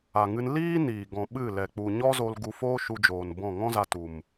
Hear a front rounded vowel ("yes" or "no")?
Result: no